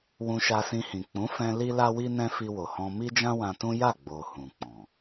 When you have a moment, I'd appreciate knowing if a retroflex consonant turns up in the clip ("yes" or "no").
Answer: no